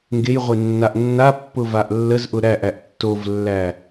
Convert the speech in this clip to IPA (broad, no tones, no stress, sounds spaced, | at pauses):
ŋ ɡ e j ʁʷ e nː a ʔ nː a pː ʊ v a ʔ lː ə z ʔ ʊ ɾ æ ʔ æ ʔ tː o v lː æ